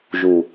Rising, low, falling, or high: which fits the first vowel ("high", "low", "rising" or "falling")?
low